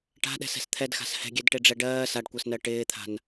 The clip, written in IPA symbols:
ʈa̤ɗɛ̤sɛ̤s t̪ʰɛdxa̤s hɛ̤ɡʲɛdʈeɖ͡ʐɛ ɖɜː saɖkʷɜsnɜ ʈɪːt̪ʰa̤n

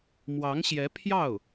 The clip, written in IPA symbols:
mwɑ˧˥ŋɕjɛ˧˥pʰjɑ˥˩ʊ̯

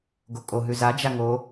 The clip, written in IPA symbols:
ɡokʼo ɦʉza d͡ʒaŋo

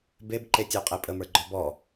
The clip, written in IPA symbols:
beb ǃetʲə˞qʼepʼə mə˞ɡ͡ǃɔbɔ

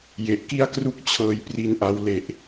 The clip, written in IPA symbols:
je˨˩ʔki˥˩a̯kru˥˩k̚ t͡ɕʰɤː˧jpri˧nʔa˧w le˨˩ʔ

